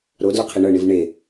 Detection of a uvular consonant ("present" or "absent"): present